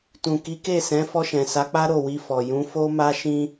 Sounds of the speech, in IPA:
t ũ˨ k i˨˦ k e˦˨ s ɛ̃˨˦ f ɔ˧ ʃ ɛ̃˨ s a˨˦ k͡p a˦ ɾ o˦˨ w i˧ f ɔ˨ j ũ˨˦ f o˦ m a˦ ʃ ĩ˦

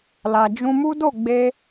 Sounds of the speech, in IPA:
l a˨ d͡ʒ ũ˧ m u˦ d o˦˨ ɡ͡b e˧

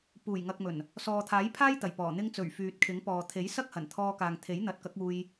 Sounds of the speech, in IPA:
p uː˨˩ j ŋ ɐ˨ k̚ m ɵ˨˩ n | s ɔː˨ t̪ʰ aː˨˥ j pʰ aː˥ j t̪ ɐ˨˩ j p ɔː˨˩ n̪ ɪ˧ ŋ t͡s ɵ˨˩ ɥ f yː˨ t̚ kʰ ɪ˨˥ ŋ p ɔː˨ t̪ʰ e˨˥ j s ɐ˥ k̚ h ɐ˨˩ n t̪ʰ ɔː˧ k aː˨ ŋ t̪ʰ e˨˥ j n̪ ɐ˨˥ t̚ k ɐ˨˥ k̚ uː˧ j

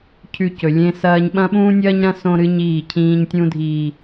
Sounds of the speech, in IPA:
cʰ ʉ˦˨ c ɵ˨ lʲ ẽ˦ s ɐː˦ ɲ ɓ ɐ̃˦ ɓ ũː˦ nʲ ɐː˦ ɲ ɾ ɐ̃˦ s õ˦ ɾ ɨ˦ ɲ iː˦˨ cʰ ĩː˦ ɲ tʲ ũ˦ dʱ iː˨

